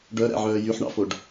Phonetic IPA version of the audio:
ɖ œ ɾ æ̰ ʕ œː j y ħ ɳ ɑ̰ f o ɖ

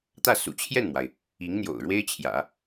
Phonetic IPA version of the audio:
t̪ ä˥˩ s ṵ˨˩ t͡ɕʰ j ɛ˥˩ n m w a˩ ɪ̯ | i˧˥ ŋ n̪ j o̰˨˩ ʊ̯ ɻ w e˥ ɪ̯ t͡ɕʰ j ä̰˨˩˦

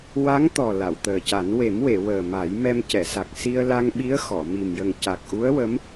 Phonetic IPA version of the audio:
w a˧˥ ŋ t̪ ɔ˨˩ l a˨˩˨ w t̪ əː˨˩ c a˨˩˦ n w e˨˩˦ m w e˨˩˨ w əː˨˩ m a˨˩˦ j m ɛ˧ m c ɛ˨˩˨ s a˨˩ k̚ s i˧ ə̯ l a˧ ŋ ɓ i˧˥ ə̯ x ɔ˨˩˨ m i˨˩ m j ə˨˩ ŋ c a˨˩ k̚ ʔ u˧˥ ə̯ w ə˧˥ m

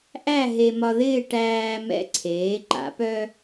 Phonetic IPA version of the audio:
ʔ æ˥˧ ɦ e˧ m ɒ˧ ð ɪː˥˧ ʈ æː˧ m ɛ̰˧ ǀʰ eː˩˧ ǃ a̰˩˧ p œ˧

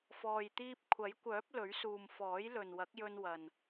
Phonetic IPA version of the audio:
f ɔː˨ j t̪ iː˧ p̚ kʷʰ ɐ˨˥ j kʷ œː˨˥ p̚ l ɵ˨˥ ɥ s uː˨ m f ɔː˨˥ j l ɵ˨ n w ɐ˨˥ k̚ j ɵ˧ n w ɐ˨ n

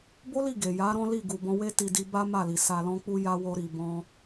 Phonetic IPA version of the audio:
b o˦ l i˦˨ ɡ e˨ j a˨˦ ɾ ɔ̃˦ l i˦˨ ɡ u˨ b ɔ̃˧ w e˦ t i˧ d i˧ b a˦ m a˦˨ l i˨ s a˧ l ɔ̃˦ k͡p u˦ j a˦ w o˦ ɾ i˧ b ɔ̃˦

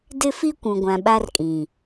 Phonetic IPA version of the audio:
d ɪ˦ f i˦ kʷ ũ˨ ɡʷ ã˨ ɓ a˦ r kʼ ĩ˨

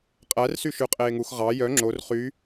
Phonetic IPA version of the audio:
qʼ æ r s y ʃ ʉ qʼ eː ŋ u x ʁ ɑ j œ ŋ͡ǁ o r χ y

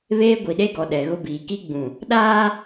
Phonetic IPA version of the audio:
β eː˦ ɡʷ i˨ ɗ e˦ ɡ ɔ˨ ɗ ɛ˨ ɣ ʊ˦ b iː˨ k i˦ ɡ͡b ũ˨ | ɗ aː˦

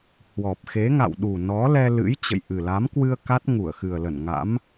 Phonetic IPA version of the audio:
h w ɔ˨˩ p̚ x e˨˦ ŋ a̰˧˨ w ɗ u˨˩ n ɔ˨˦ l ɛ˧ l ɨ̰˧˥ j t͡ɕ ə̰˧˨ j ʔ ɨ˨˩ l a˨˦ m k w ɨ˧ ə̯ k a˦˥ t̚ ŋ u˧˩ ə̯ x ɨ˨˩ ə̯ l ə˧˩ n ŋ a̰˧˥ m

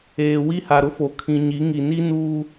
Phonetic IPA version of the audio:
eː˨ w i˦ h a˨ ɾ ʊ˦ f o˨ kʰ ĩ˨ ɲ i˨˦ ŋ i˨ n i˦ n uː˦

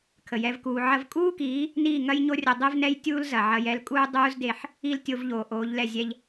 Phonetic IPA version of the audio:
kʰ ə˨ j ɛ˦ v k uː˧ ʕ ɐ˧ v kʼ uː˦ k iː˨˦ | n iː˦˨ ŋ ɐ˦ j ɲ o˦ rʲ ə˧ dˤ e˦ v n ɛ˦ j tʲ uː˦ l z ɐ˨ ʕ ɐ˧ j ɛ˧ l kʼ uː˦ dˤ uː˦ z d e˧ ħ | i˦ l tʲ o˧ v ʎ oː˨ ʔ oː˨˦ ʎ l ɛ˦˨ zʲ ɛ˧ ʎ

